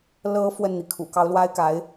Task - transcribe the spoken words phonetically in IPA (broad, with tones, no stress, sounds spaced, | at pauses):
l ɤ˧˥ f w ə˥˩ n n̪ i˩ kʰ ṵ˨˩ k ɑ˧˥ ʊ̯ l w a˥ ɪ̯ k a˧˥ ɪ̯